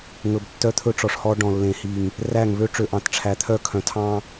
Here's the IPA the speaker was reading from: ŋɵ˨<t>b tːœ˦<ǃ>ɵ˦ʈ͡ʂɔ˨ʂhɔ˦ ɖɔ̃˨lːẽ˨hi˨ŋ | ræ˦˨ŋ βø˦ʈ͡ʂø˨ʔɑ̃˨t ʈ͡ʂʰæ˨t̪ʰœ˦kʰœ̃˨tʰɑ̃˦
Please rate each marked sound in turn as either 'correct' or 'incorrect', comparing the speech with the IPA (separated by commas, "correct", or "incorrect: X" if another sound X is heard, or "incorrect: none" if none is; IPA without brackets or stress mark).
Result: incorrect: none, incorrect: t̪ʰ